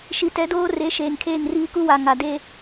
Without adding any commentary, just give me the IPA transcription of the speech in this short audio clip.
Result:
ʃi˨tɛ˨˦doː˦re˨˦ ʃeː˨ŋkʰeː˦˨ŋriː˦ ku˦wa˨ ŋa˨ de˦

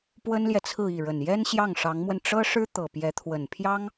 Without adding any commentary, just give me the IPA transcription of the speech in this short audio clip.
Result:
pwə˥nljɛ˨t͡sʰɹ̩˥˧i˥˩ ɻə˨˩njɛ˥nɕjɑ˥˩ŋ ʂɑ˧˥ŋmwə˧n ʈ͡ʂɤ˥ʂɻ̩˥ t̪ɤ˨˩pjɛ˧˥t̪ʰwə˨˩n pʰjɑ˥ŋ

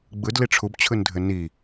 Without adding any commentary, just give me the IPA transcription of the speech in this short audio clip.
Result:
ɡ͡bɯd liʈ͡ʂʰub t͡ɕʰɯndʱɘni

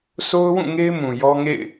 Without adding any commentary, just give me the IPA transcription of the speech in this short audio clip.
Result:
sʰo˦ʊ̯wũ˦˨ŋe˦ɪ̯ mũ˨jɔ˦ŋḛ˦˨ɪ̯

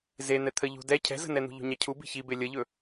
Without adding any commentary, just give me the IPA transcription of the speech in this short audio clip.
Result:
zen̪ɛ t̪ʰə ʎṳdɛ cʰɛ̤zə̤nɛn̪ṳ ʎṳɲacʰu bi̤çibe lʲəʎɵ

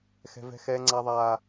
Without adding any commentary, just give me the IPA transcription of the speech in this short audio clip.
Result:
xɛ̤˦ vɛ̤˦xɛː˦ŋ͡ǀa˦ðˤaː˦

